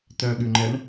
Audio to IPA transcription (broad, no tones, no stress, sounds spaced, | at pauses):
t œ ɠ ʉ ŋ͡ǃ ɛ ɳ